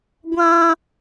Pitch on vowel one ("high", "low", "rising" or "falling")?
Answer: high